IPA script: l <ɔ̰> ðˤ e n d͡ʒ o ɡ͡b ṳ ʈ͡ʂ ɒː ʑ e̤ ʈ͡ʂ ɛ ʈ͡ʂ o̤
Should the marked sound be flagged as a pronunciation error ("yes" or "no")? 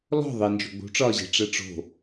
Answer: yes